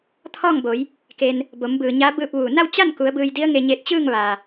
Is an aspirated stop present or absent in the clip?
present